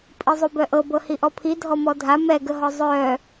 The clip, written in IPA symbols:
pʼ i zˤ u b œ ʔ ɤ b ɤ h i ʔ ɔ pʰ i dʱ ɔ m ɔ dʱ a m ɛ ɡ ə ɦ ɔ zˤ œ

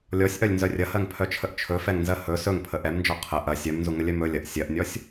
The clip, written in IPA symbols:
lʲ ɔ sʲ ʔ œ lʲ n z œ rʲ ɐ h ɜ ŋ pʰ œ t͡ʃʰ ə ʔ t͡ʃʰ ɵ f ɛ ŋ n z ɜ h ɵ s ɵ ŋ pʰ ə ʔ ɛ m n d͡ʒ ɔ qʰ ə ʔ ɐ sʲ œ m n z u ŋ ə lʲ œ m ɵ lʲ ɐ ʔ sʲ ɜ ʔ nʲ ɔ sʲ

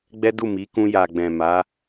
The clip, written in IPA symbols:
ɡ͡b ɛ˦ d u˦˨ m i˨˦ k ũ˧ j a˨ ɡ͡b ɛ̃˨ m a˨˦

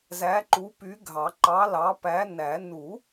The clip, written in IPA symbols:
z æ˨˥ ǃ u˨˥ p y˨˥ ɡʱ ɑ˨˩˦ ǃ ɑ˨˥ l ɑ˨˥ p æ˨˥ n æ˨˩˦ n u˨˩˦

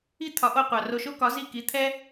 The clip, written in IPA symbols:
i˥ t̪ʰ ɒ˩˥ ʔ o˧ qʷ ɑ˩ r o˧ ʃ o˥ k ɒ˩˥ z i˥˩ k i˩˥ t̪ʰ ɛ˥

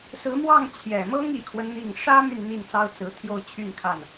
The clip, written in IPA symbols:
s ɹ̩˧˥ m w ɑ˥˩ ŋ t͡ɕʰ j ɛ˨˩ m ɤ˥ ŋ i˨˩ kʰ w ə˦ n n̪ i˥˩ ŋ ʂ ä˥ m y˨ n n̪ i˥˩ n t͡s ɑ˥ ʊ̯ t͡s ɹ̩˧˥ t̪ʰ j o˥˧ ʊ̯ t͡ɕʰ y˥˧ n kʰ a˥˩ n

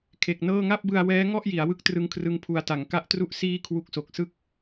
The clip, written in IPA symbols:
kʰ e˨˩ k̚ n ɤː˥˩ ŋ a˥˩ p̚ b ɯ˧ a̯ w ɛː˦˥ ŋ ɔ˥˩ ʔ j i˩˦ a̯ w ɯ˦˥ k̚ t r ɯ˦˥ ŋ kʰ r ɯ˦˥ ŋ pʰ u˧ a̯ t a˩˦ ŋ k a˦˥ ʔ t r u˦˥ ʔ s iː˥˩ kʰ w u˦˥ k̚ s o˨˩ k̚ s ɯ˥˩ k̚

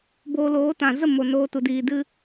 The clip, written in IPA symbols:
b oː˧ l oː˨˦ t ã˨ z ə˦˨ m o˨ n oː˧ t u˨ d iː˨ d ɨ˧

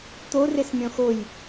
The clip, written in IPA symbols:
t̪ o r e s mʲ ɔ̃ x o j

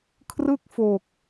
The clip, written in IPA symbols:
kʰ r ɯ˥˩ k̚ f o˨˩ k̚

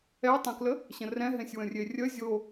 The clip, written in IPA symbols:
ɛ tˤ ɛ̃ k l ə | ɕ ə̃ r ɛ̃ ɦ ẽ sʲ w ə̃ rʲ e rʲ ə zʲ o

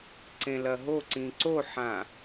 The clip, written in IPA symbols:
ǀ ẽ l ɐ ɦ o ǀ ĩ ǀ o ħ ã

